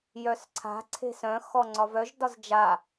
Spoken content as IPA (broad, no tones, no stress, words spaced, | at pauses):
jœsǀʰa̤ ǀʰe̤sœ̃ xɔŋ͡ǀɒvœʒ dɒzd͡ʒa